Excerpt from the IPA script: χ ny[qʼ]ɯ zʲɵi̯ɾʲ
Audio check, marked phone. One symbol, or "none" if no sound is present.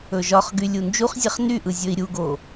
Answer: ʔ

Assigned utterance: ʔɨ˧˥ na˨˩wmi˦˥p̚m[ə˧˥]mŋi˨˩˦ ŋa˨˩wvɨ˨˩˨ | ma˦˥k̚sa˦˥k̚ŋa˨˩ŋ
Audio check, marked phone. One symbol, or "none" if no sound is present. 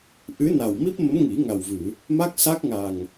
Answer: ə˧˥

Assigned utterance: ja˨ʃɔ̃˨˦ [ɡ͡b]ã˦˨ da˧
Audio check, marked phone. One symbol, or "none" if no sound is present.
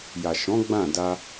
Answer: ɡ͡b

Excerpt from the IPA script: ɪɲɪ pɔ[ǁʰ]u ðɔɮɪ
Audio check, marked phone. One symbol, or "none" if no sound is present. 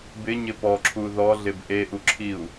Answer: ǁʰ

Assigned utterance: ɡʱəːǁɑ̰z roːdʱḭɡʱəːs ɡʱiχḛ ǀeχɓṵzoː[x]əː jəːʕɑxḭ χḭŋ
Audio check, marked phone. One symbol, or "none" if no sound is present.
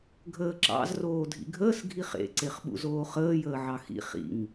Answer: χ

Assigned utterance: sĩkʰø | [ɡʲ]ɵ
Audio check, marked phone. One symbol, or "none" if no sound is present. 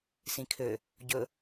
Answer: ɟ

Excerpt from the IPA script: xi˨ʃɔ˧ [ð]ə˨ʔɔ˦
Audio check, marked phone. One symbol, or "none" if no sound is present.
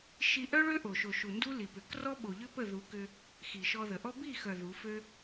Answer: ð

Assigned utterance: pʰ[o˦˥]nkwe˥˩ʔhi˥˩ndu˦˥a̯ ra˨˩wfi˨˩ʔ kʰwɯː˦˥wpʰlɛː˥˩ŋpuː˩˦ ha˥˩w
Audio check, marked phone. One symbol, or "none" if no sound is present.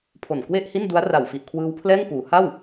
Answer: o˨˩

